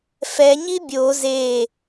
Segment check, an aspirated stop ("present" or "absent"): absent